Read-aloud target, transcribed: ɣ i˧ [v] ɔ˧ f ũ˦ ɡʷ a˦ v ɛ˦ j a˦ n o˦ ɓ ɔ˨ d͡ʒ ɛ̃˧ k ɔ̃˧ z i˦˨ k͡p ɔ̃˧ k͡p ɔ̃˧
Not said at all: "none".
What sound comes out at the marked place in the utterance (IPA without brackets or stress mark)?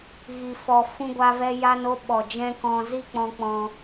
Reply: f